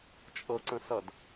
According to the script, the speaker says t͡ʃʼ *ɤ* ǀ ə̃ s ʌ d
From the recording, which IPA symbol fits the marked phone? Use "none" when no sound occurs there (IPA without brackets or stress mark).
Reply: ɤ